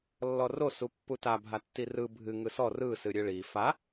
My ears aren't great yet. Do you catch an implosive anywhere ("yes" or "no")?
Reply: no